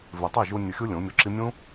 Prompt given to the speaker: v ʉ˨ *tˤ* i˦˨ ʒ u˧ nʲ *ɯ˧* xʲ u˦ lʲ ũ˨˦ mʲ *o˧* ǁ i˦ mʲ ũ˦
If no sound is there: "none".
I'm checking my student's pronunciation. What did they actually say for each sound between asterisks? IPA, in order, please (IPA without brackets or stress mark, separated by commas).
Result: tˤ, ɯ˧, o˧